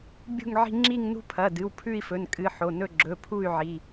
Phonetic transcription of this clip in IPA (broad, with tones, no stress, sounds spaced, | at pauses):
bʲ ṳ˥˧ ŋ ʕ i̤˥˧ ŋ͡ǁ i˥˧ ŋ n ṳ˥˧ pʰ ɐ˩˧˩ d ɨ˩˧˩ w pʰ ʉ˥˧ i̯ f ɵ˩˧˩ n kʼ ɨ˩˧˩ ħ o˩˧˩ n ɵ˥˧ ɡ͡ǁ ɵ˩˧˩ pʰ u˥˧ y̯ ʕ i˩˧˩